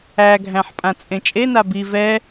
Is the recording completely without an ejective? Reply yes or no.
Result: no